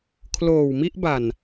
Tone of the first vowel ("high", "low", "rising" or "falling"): low